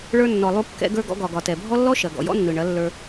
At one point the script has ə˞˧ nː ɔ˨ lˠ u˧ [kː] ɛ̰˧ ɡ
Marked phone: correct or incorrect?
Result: correct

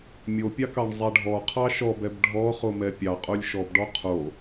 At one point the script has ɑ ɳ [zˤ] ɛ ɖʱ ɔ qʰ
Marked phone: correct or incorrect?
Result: correct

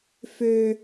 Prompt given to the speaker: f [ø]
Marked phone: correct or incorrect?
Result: correct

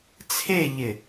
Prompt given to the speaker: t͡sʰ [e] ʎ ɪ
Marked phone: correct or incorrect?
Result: correct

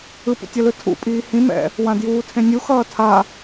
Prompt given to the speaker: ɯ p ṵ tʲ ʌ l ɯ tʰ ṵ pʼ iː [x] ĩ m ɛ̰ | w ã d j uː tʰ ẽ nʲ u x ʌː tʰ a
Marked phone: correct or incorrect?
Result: incorrect: h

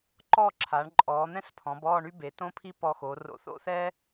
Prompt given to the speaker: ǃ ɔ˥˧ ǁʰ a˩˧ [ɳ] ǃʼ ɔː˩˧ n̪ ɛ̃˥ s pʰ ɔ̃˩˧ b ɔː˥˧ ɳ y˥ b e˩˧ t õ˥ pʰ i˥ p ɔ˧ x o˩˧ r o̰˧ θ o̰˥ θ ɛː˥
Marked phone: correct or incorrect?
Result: correct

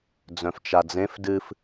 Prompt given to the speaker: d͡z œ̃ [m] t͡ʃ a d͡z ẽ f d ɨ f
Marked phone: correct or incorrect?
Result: incorrect: f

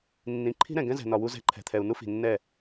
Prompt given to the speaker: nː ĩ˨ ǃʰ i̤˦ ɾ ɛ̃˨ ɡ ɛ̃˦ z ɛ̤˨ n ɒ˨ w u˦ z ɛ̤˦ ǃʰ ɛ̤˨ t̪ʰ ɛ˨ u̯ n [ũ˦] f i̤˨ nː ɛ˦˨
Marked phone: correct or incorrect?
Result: incorrect: u˦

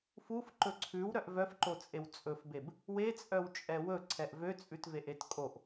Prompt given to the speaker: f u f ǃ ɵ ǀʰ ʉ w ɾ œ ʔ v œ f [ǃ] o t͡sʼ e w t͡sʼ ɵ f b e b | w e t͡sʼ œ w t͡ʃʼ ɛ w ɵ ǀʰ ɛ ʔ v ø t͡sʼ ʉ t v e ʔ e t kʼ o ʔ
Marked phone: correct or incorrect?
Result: correct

